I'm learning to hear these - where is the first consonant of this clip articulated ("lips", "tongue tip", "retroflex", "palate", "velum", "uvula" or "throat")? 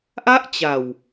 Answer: throat